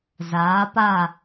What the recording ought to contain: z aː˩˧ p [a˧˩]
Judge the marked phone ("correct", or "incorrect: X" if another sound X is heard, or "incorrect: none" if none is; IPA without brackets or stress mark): correct